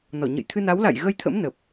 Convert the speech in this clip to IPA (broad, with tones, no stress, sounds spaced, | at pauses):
n ɔ˧˩ ɲ ə̰˧˨ j t̪ʰ ɨ˧ n a˨˦ w l a̰˧˨ j ɣ ə˧ j t̪ʰ ə̰˧˥ m n ə˨˩ p̚